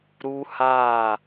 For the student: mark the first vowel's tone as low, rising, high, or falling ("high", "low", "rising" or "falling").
high